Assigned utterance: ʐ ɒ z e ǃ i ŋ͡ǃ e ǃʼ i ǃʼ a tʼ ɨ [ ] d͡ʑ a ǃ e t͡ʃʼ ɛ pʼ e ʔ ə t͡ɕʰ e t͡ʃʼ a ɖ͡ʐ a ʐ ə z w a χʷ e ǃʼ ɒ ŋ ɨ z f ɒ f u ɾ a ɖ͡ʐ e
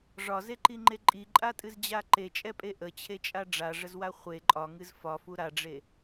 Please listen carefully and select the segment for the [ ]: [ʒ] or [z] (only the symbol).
z